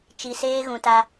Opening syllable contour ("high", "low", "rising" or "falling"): low